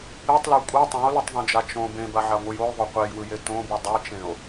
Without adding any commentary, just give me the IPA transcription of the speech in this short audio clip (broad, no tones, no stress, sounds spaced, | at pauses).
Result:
e tˤ l a kʷʼ ɤ tˤ ẽ o̯ l ɯ tˤ ðˤ õ d͡ʒ a t͡ʃ õ b ẽ b a ʕ a ŋʷ ɯ j o j ðˤ o qʷ e j w ɯ j e t õ b u dˤ e t͡ʃ ẽ o̯